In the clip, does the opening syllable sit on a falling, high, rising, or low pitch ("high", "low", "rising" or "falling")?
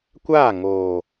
falling